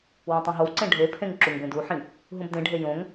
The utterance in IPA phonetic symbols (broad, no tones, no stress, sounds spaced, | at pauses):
w õ tˤ ũ ɦ o w ǀ ẽ ɖʱ e pʰ ẽ ŋ ǁ u ŋ b ẽ d u ħ ĩ | ɦ ũ b d ẽ ɖʱ e j õ ŋ